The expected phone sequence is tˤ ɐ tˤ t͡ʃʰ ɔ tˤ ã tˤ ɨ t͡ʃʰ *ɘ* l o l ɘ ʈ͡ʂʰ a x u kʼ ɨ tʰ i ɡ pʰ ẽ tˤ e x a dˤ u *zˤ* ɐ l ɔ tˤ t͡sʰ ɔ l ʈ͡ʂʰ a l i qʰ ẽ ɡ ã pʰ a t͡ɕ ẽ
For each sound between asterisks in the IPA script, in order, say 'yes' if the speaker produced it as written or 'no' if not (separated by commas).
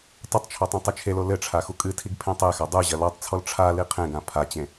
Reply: no, no